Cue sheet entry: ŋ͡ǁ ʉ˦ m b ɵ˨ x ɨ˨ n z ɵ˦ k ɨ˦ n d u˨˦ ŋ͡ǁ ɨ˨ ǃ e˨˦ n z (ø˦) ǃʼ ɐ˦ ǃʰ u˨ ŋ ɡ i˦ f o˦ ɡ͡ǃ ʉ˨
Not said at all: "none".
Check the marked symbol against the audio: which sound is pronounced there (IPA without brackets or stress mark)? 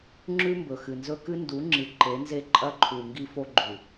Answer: e˦